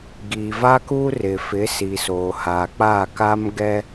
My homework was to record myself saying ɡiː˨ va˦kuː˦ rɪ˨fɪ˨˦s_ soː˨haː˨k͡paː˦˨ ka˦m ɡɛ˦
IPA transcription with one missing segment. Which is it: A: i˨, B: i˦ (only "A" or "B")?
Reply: A